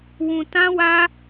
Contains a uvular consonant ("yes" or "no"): no